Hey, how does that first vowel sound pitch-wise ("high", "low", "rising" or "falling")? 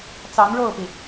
rising